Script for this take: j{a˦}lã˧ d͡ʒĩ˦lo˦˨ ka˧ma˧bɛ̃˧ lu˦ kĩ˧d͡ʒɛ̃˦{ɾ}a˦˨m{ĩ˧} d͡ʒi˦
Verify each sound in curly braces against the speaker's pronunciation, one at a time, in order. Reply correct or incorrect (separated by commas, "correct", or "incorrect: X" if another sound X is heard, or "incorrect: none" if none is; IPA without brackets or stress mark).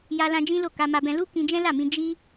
incorrect: a˧, incorrect: l, correct